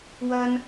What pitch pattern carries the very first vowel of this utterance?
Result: high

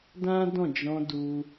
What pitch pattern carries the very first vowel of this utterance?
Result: high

